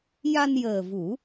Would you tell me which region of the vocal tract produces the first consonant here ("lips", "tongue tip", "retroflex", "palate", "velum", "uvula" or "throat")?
palate